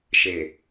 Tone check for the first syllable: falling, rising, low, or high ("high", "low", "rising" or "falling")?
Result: low